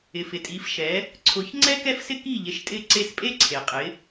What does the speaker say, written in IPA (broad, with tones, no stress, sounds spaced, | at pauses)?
ɪ˩ f ɪ˩ tʼ i˩˥ f ʃ ɛ˩˥ | ǀʰ ʊ˩˥ ç ŋ͡ǀ ɛ˥ k ɛ˥ f s ɪ˥ k i˥˩ ʎ e˩˥ ʃ tʼ ɪ˥˩ ǀ e˥˩ s pʼ e˥ ǀʰ e˩ qʼ ɪ˩˥